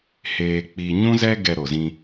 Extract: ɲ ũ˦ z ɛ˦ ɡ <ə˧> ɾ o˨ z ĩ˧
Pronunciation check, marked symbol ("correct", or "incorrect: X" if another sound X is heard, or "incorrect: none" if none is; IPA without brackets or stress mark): incorrect: ɛ˧